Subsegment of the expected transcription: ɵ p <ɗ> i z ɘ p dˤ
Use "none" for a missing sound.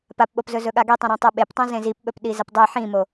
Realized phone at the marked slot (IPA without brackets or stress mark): ɗ